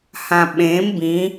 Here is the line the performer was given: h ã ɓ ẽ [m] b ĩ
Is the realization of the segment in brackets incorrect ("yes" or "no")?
no